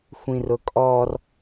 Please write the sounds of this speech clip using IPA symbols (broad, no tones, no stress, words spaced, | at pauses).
xʷĩrʊkʼɔr